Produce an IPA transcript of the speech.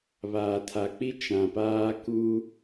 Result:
βaː˨tʰa˨k͡pi˦ t͡ʃã˨paː˦ ku˦

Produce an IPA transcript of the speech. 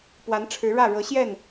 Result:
pwa˨˦n ʈ͡ʂʰɻ̩˨˦ɻä˥˨ ɻɤ˨˦ɕjɛ˥˨n

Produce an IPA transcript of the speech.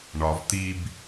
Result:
ɳɒv t̪ib

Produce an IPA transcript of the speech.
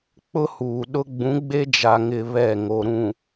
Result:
k͡pʊ˦huː˨ɗʊ˦ ɡ͡bũ˨˦ɡ͡be˦d͡ʒa˨ŋɪ˨ βɛ˦˨ŋo˨ɾũ˨

